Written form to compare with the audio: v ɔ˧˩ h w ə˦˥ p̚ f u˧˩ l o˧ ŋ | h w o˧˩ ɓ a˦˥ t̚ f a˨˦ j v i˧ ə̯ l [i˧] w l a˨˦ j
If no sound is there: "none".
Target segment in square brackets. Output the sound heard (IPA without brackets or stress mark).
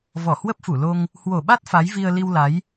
i˧